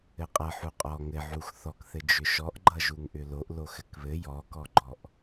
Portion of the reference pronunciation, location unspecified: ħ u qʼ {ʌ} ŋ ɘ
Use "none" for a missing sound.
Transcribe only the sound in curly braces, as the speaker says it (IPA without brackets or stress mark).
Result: ɔ